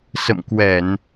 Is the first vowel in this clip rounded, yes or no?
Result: no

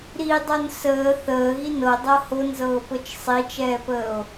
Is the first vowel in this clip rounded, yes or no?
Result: no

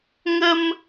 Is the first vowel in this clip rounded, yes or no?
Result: no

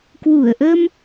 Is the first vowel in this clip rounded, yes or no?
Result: yes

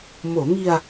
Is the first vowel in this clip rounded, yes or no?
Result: yes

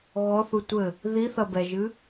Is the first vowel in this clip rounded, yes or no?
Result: yes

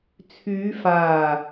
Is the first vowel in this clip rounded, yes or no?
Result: yes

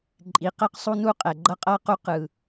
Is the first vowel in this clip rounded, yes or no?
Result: no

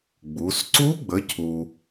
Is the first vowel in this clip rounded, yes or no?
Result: yes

